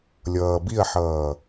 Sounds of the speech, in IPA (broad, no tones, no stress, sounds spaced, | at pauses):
lʲ ʌː b i ɐ̯ ħ ʌː